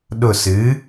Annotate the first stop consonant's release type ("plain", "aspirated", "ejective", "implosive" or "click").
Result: implosive